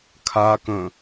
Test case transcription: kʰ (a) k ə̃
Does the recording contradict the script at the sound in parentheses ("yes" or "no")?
no